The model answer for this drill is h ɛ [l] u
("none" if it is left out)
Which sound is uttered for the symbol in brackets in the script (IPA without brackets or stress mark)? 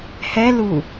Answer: l